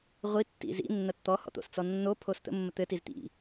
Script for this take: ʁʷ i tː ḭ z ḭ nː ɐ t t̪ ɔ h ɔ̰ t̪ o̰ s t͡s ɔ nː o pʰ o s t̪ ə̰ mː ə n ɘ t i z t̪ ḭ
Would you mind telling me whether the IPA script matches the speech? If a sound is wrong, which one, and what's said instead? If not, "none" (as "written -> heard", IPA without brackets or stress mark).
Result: n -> t̪